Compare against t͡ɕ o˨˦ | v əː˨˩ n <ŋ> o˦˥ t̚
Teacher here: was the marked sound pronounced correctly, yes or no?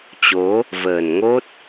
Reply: yes